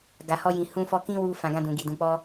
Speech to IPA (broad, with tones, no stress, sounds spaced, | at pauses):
ɡ a˨ h ɔ˧ j ĩ˨ h ũ˧ f ɔ˧ k ĩ˦ w u˧ f ã˨ ɡ ã˧ d ũ˨ ɡ i˨ d ũ˨ k͡p ɔ˧